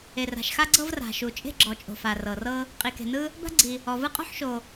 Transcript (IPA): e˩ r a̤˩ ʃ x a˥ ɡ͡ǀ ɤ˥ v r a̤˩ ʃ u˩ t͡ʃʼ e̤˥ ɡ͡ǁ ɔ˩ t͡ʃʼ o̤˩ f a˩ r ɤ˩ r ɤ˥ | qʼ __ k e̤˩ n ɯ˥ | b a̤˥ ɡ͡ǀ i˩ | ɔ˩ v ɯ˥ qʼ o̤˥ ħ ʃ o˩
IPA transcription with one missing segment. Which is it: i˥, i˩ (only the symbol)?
i˩